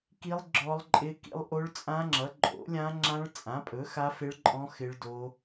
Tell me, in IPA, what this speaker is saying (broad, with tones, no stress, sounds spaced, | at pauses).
k i˦˥ lˠ ɡ͡ǁ ɔ˦˥ lˠ ǃʼ ɪ˦˥ k ḭ˦˥ lˠ ʔ o˦˥ ɭ t͡sʼ ã˦˥ ŋ͡ǁ ʌ˨˥ ǃʼ o̰˨˥ lʲ ã˦˥ ŋ͡ǁ ã˦˥ ɭ t͡sʼ ã˨˥ pʼ ɵ˨˥ x a˦˥ f ɪ˦˥ ɭ ǃʼ ɔ̃˦˥ x ɪ˦˥ ɭ d o˦˥